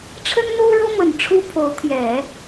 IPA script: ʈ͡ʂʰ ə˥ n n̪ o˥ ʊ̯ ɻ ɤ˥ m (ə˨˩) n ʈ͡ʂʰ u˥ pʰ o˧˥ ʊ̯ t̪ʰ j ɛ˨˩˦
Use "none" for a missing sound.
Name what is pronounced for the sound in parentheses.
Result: ə˨˩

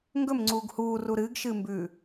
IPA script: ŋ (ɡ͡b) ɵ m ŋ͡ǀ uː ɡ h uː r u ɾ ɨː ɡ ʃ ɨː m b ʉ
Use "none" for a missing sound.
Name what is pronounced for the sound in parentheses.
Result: ɡ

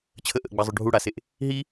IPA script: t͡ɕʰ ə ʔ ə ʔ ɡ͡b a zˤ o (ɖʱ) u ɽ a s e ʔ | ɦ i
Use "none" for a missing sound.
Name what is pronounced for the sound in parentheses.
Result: ɖʱ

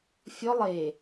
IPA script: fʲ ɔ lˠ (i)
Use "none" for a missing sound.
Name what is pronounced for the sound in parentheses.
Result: e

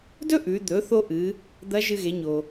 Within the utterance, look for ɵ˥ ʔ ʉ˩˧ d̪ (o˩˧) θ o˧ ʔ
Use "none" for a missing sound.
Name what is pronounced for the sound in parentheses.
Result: ɵ˩˧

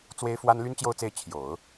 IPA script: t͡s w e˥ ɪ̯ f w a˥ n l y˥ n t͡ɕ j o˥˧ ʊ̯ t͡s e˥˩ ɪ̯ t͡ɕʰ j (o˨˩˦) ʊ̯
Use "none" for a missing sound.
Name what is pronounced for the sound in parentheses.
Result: o˨˩˦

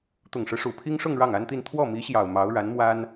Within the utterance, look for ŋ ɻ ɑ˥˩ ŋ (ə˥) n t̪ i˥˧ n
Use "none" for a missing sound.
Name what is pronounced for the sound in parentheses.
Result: a˥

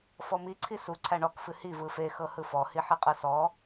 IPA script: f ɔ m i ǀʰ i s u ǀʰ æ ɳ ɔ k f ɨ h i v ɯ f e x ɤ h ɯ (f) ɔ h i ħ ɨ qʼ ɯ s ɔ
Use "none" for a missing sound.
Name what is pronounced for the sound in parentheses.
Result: f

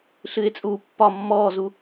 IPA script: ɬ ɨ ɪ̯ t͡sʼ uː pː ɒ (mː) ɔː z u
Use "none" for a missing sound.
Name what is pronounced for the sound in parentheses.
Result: mː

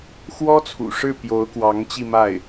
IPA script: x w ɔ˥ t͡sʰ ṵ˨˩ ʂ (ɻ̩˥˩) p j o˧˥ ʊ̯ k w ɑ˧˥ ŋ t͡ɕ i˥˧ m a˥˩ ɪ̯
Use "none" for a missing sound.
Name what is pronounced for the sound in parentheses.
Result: ɻ̩˥˩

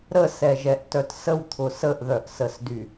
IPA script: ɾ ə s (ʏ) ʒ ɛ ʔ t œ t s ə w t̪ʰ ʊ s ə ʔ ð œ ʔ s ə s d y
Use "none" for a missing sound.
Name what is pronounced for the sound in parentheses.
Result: ɛ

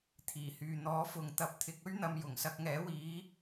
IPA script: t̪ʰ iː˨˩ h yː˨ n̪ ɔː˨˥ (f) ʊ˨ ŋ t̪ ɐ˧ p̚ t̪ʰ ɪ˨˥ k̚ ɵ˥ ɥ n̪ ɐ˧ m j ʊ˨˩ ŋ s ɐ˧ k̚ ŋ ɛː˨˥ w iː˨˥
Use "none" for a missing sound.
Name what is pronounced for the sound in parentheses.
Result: f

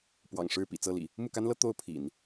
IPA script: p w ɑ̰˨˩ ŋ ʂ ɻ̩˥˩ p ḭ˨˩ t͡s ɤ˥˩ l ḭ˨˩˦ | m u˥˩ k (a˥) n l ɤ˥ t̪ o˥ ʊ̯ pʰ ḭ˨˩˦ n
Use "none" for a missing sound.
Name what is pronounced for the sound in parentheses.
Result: a˥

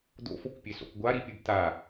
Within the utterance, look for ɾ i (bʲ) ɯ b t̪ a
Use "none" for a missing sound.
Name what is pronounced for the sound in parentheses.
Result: pʲ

